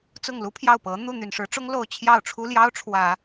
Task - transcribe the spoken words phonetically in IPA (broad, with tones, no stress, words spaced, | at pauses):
t͡sʊ˥˩ŋlu˥pʰjɑ˥˩ʊ̯pɤ˧˥ n̪u˥˩ n̪y˨˩nʂɻ̩˧˥ʈ͡ʂʊ˥ŋ lo˥˧ʊ̯ t͡ɕʰjɑ˥˩ʊ̯ʈ͡ʂʰu˥ljɑ˥ʊ̯ ʈ͡ʂʰwä˨˩˦